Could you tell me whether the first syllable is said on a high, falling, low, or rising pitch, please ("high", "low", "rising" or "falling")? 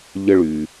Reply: high